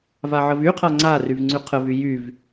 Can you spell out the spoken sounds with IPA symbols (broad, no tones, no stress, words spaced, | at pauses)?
vaʕəvyqʰa ŋ͡ǀaryv ŋ͡ǀyqʰəvy jyv